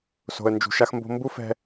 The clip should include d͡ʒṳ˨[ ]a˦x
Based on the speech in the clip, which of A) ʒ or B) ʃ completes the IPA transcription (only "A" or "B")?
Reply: B